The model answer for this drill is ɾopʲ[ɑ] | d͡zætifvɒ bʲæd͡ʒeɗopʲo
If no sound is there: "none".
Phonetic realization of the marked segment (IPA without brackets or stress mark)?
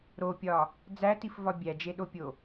ɒ